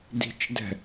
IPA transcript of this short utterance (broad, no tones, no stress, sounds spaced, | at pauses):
d i̤ t͡ʃ d ɛ̤